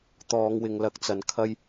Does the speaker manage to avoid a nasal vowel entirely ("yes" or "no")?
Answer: yes